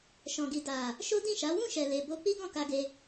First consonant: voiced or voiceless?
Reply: voiceless